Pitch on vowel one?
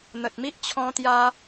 low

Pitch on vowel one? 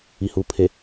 low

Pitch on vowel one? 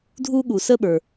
high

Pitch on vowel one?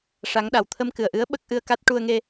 rising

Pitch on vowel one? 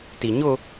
low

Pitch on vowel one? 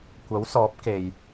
rising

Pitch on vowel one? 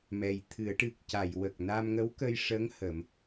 low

